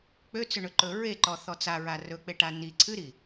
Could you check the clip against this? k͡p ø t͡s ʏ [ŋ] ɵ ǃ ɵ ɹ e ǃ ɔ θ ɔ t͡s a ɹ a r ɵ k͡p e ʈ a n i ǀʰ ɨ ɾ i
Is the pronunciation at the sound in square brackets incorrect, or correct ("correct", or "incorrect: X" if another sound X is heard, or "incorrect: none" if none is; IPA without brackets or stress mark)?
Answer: incorrect: ɳ